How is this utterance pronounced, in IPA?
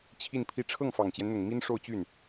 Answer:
t͡ɕʰ i˥˧ n pʰ i˥˧ ʈ͡ʂʰ ɤ˥˩ ŋ f ɑ˨˩ ŋ t͡ɕ j ɛ˦ n n̪ ʊ˨˩ ŋ m i˥ n ʂ o˥˧ ʊ̯ t͡ɕ y˥˩ n

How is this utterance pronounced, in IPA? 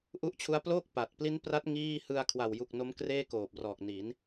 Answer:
ʔ u˥˩ ʔ t͡ɕʰ u˦˥ a̯ p l oː˥˩ k̚ p a˨˩ t̚ p l i˦˥ n p r a˦˥ t̚ ŋ iː˥˩ h ɯ˧ a̯ kʰ w a˨˩ w j u˨˩ k̚ n o˦˥ m k r eː˥˩ k oː˨˩ p̚ r ɔː˨˩ k̚ n i˩˦ n

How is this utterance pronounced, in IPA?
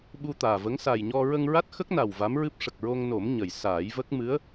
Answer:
ɓ u˧ t̪ aː˨˩ v ə˧˥ ŋ s a˨˩ j ɲ ɔ˧ ɹ ə˧ ŋ ɹ a˦˥ t̚ x ə˦˥ k̚ n a˨˩ w v a˧˥ m ɹ ɨ˦˥ p̚ ʂ ə˨˩ k̚ ɹ o˧ ŋ n o˨˩˦ m ɲ ə˨˩ j s aː˨˩˦ j v ə˦˥ k̚ m ɨ˧˥ ə̯

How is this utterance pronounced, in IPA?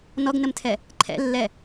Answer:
n ɔ ɡ n ə m tʰ ɛ | ǃʰ ɛ̰ lː ɛ

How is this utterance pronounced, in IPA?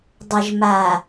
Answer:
dˤ ə˨ ʒ m a˨

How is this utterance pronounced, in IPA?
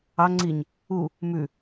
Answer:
ɑ ŋ͡ǀ i ɲ | u | m ʉ

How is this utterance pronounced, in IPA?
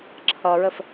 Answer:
ǁʰ ʌ ɹ ə f

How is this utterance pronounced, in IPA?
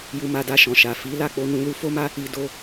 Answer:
j u˧ m a˧ d a˧ ʃ ɔ̃˨ ʃ a˨ f i˨˦ l a˦˨ k͡p o˧ n ũ˧ l u˧ f o˦ m a˦ | i˧ d o˧

